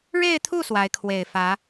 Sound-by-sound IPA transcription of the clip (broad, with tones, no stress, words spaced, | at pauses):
ɻe˥˧ɪ̯t̪ʰu˥˩ swa˧˥ɪ̯kʰwe˨˩ɪ̯fä˧˥